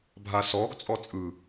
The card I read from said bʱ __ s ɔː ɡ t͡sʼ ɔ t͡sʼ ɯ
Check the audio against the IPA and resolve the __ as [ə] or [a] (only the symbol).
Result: a